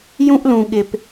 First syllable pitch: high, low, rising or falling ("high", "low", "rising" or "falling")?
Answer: high